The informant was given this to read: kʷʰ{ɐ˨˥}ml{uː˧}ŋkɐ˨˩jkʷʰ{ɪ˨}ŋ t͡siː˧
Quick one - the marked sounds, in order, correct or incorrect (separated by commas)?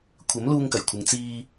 correct, correct, correct